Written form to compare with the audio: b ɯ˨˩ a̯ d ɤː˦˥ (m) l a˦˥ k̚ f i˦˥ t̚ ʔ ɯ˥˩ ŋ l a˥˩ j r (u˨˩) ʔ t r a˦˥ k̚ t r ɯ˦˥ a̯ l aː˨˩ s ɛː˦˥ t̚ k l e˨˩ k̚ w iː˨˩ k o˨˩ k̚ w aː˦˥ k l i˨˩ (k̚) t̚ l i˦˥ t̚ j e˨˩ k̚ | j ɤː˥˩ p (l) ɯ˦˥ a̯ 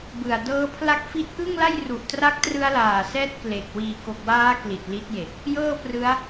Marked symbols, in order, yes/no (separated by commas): no, yes, no, no